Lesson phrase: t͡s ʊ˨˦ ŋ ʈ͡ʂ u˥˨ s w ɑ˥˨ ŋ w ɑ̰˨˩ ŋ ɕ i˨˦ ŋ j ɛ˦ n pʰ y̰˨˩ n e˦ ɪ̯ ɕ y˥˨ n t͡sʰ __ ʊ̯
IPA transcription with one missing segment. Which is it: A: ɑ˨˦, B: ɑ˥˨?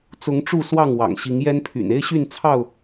B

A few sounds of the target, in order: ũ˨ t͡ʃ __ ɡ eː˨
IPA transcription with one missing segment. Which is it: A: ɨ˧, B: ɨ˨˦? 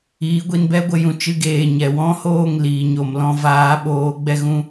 A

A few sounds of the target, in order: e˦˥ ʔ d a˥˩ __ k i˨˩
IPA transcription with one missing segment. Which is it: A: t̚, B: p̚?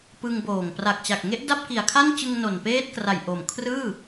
B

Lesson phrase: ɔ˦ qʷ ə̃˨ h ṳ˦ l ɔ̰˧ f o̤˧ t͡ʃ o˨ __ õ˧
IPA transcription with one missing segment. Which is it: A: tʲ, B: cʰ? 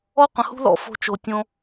A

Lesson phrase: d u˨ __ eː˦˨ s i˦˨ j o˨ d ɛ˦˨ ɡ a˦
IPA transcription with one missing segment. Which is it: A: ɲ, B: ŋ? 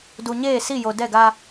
A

